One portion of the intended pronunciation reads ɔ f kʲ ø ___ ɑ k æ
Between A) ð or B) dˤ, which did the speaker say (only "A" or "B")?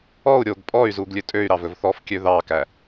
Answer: A